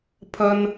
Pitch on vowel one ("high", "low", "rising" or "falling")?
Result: high